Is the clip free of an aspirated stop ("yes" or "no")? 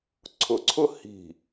no